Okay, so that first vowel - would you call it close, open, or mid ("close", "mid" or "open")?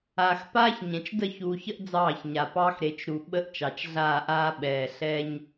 open